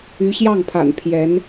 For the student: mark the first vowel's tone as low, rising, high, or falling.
rising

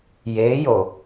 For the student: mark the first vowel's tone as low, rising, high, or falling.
rising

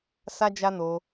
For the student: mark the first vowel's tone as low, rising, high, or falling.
high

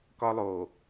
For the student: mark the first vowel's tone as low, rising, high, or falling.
high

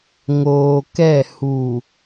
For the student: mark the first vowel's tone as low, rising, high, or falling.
low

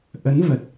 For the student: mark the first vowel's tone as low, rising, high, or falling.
rising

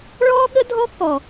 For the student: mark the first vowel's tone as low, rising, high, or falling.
high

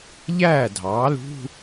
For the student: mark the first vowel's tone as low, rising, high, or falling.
falling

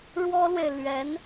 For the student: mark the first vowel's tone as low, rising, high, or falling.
high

